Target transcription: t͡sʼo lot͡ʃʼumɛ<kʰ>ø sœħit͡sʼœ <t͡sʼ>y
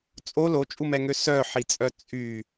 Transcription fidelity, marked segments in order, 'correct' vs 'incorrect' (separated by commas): incorrect, correct